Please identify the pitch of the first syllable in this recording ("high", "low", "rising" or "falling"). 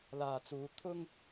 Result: low